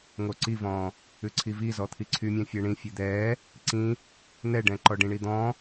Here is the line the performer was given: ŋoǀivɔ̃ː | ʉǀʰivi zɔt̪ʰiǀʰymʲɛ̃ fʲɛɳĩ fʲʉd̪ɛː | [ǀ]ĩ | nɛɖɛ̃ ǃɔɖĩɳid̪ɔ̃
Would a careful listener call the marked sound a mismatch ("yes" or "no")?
no